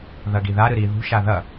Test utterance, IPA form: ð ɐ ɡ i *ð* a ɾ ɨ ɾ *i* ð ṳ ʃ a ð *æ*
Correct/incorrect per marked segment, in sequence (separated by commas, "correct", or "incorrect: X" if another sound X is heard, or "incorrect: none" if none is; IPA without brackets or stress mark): correct, correct, incorrect: ɐ